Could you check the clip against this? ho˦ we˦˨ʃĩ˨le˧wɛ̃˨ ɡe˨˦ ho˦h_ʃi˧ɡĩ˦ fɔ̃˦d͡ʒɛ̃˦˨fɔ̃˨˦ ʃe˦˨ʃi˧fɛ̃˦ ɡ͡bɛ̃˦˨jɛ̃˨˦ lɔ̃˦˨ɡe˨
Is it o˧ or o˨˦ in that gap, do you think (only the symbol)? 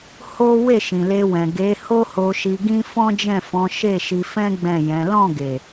o˧